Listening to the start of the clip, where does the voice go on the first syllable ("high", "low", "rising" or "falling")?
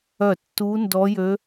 falling